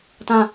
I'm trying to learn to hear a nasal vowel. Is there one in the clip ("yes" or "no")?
yes